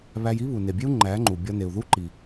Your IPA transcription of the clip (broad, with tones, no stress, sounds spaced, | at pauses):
β æ˧ j i˦ β u˨ n e˨ bʲ e˦ u̯ ŋ͡ǃ æ˨˦ ŋ͡ǃ u˨ bʲ ɒ˧ n e˨ u̯ ð u˦ ǃ i˨